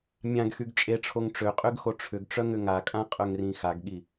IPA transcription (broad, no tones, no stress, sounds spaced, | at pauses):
mʲ ã ɡ x y ɡ t͡ʃʼ e ʈ͡ʂʰ o ŋ ʈ͡ʂ ø qʼ ø ɡ x o ʈ͡ʂʰ ʏ ɡ ʈ͡ʂ œ ŋ ʏ ŋ a kʼ ã qʼ œ ŋ r ĩ x a ɡ ɠ i